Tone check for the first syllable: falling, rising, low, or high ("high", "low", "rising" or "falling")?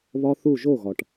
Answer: high